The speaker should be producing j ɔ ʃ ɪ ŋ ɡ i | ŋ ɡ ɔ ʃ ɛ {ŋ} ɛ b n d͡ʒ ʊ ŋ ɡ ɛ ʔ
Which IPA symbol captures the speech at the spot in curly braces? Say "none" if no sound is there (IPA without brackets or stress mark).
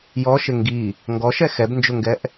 x